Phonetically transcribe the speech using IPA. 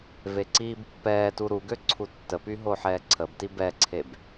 veǀiːbpːɛːtu ɾuɡø ǀʰutːəpy ɦoħɛːǀʰəbti bɛǀʰeb

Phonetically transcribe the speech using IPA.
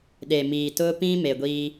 ɗe˨ miː˨tʊ˦pĩ˦me˨ ɡʷiː˦

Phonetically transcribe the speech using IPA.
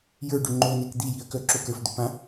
jə˞ɖʏ ŋ͡ǃonɛk d̪ijiɐ̯kœ ǁokə˞fd̪ʏpã

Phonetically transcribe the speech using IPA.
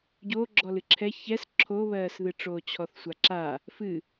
ɟo ɡ͡ǁɔlɨǁʰɛ çɛs ǁʰoβɜːsðɨʈ͡ʂoː t͡ɕʰɔθsʷaǁa | fɨ

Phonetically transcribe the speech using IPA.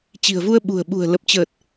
t͡ɕi̤˨˩ə̯vu˧ə̯ ɓṳ˨˩ə̯ ɓṳ˨˩ə̯lə˨˩p̚t͡ɕəː˨˩t̚

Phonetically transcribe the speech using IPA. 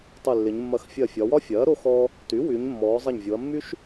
tˤy˧˩lːɪ˩˧ɲmːɐ˧x fʲɐ˧˩fʲɒ˩˧wɒ˥fʲɐː˩˥ ɾo˥xɔ˥ | ty˩˥wy˩˧ɲ mːɔː˩˧zˤɐ˧˩ɲvʲo˩˧ɐ̯mːy˥ʃ

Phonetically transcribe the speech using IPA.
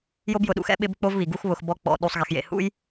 jo˦bjʊ˨ɗṵ˧xɛ̰˦ ɓɪ˦bk͡po˦v βi˨ ɡu˦xβʊ˧x bɔ˦k͡pɔ̰˧ ɗu˧sˤɣe˧xjḛ˧ hṵ˦j

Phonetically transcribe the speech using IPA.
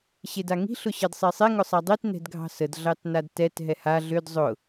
ɕedaŋi̤ ɬʊɕɜdsˤesˤe ŋʊsˤadˤit nɛ̤dɡʱɑ̤səd ɮɑtnadtɛt ɦɛha ɮød zˤʊ

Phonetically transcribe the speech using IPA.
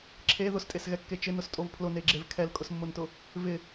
ǁʰe ðʊstʼesɣɛkːe t͡ʃɪnʊstʼov pʰlʊneɡ͡ǁev kʰɛlkʼʊsmːʊntʊ | vɪ

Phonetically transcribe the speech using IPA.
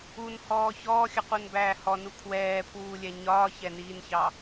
unhɔː çɔːxʲəqunbæː hɔnu kʰwɛːpʰwuːlʲɛ ɲɒːçɛniːnçɑ

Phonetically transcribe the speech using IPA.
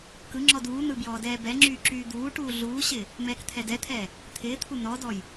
kɯŋ͡ǁɔd uːn̪ɯ bjɔːdɛːbɛŋ͡ǁyː ǁyːd̪uːʈuː ɮuːɕɪː | mɛːkt̪ʰɛdɛt̪ʰɛː | t̪ʰɪːt̪ʰu nɔdɔj

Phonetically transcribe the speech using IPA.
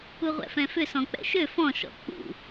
uʁʷɛ̰fɛ̃fʏ sɔ̃k͡pɛ̰ʃø fɔ̃ ʃɔ̰k͡pṵ

